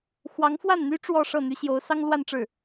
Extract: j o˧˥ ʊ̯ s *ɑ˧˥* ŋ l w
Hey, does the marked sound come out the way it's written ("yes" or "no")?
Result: no